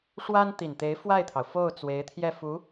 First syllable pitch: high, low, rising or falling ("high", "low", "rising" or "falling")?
high